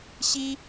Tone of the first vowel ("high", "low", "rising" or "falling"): high